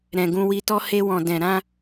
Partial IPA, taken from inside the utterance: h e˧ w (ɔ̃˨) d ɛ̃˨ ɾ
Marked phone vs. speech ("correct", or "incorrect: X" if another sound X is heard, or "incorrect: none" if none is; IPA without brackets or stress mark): correct